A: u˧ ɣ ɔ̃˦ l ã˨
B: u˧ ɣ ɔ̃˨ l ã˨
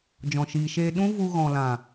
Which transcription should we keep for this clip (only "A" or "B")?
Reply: B